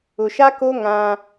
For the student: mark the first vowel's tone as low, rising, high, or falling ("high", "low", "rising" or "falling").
low